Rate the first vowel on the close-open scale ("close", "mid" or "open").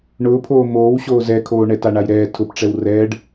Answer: close